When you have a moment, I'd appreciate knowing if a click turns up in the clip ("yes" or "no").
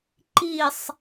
yes